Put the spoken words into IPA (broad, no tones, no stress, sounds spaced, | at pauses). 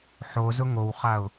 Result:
ħ o z ʊ ŋ o w χ a ʊ̯